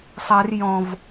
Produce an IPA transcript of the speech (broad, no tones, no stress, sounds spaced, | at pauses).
sˤ ɛ r j ɔ̃ v